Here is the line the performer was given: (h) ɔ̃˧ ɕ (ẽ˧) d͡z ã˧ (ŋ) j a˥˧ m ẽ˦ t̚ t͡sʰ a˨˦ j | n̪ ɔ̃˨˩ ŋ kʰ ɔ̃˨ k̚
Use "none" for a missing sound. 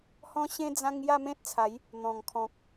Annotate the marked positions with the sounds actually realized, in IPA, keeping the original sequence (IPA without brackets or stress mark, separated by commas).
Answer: h, ẽ˧, ŋ